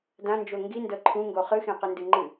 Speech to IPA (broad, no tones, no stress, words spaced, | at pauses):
dãnd͡ʒo ŋɡindɤ ǃʰũŋɡo χɨxẽqɨndɨ ŋ͡ǃɨ